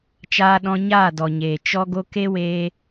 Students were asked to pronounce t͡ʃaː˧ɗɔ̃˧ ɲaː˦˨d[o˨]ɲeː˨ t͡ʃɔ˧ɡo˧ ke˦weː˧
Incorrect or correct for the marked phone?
incorrect: ɔ˨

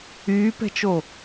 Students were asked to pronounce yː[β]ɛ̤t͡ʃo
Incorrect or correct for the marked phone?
incorrect: p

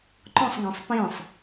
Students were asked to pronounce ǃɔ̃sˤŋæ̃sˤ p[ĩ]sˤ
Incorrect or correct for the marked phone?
correct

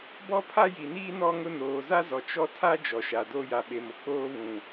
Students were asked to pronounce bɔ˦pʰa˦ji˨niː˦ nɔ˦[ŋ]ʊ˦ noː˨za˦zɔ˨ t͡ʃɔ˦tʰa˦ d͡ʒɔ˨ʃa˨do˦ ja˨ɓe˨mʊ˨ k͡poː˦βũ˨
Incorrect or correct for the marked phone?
correct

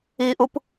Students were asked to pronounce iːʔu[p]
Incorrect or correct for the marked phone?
correct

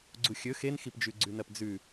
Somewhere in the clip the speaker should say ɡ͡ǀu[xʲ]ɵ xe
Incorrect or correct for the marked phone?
correct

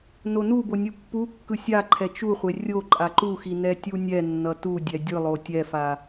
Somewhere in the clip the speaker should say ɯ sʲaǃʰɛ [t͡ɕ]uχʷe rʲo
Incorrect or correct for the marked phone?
incorrect: t͡ʃ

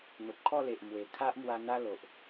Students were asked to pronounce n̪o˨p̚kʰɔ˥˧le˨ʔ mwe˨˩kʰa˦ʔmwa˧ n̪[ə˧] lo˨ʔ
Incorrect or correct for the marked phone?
incorrect: a˧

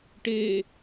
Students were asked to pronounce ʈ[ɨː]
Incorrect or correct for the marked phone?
incorrect: eː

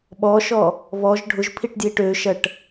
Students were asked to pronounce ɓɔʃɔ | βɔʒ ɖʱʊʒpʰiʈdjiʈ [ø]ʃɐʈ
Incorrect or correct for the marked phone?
correct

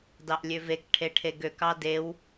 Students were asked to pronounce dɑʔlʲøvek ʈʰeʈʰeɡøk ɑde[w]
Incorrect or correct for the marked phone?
correct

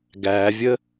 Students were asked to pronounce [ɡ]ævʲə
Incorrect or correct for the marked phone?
correct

